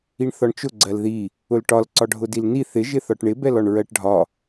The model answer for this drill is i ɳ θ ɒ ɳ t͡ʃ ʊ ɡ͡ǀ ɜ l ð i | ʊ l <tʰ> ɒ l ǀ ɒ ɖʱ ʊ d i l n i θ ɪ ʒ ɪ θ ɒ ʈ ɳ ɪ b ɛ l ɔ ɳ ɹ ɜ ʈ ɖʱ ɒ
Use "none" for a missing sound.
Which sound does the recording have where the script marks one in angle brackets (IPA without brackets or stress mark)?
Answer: ʈ